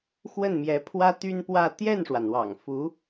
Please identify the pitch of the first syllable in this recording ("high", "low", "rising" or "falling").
falling